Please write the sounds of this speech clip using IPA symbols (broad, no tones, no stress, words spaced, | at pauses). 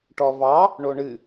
ʈɔvɑ | ɳoɳɨ